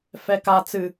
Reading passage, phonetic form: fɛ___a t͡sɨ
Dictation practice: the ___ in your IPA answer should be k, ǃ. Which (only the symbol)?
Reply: k